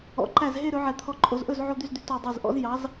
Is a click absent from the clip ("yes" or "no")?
no